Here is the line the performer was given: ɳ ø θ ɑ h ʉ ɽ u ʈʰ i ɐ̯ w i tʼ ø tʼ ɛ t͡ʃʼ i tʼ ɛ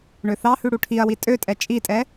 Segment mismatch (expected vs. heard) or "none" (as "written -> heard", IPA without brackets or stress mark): none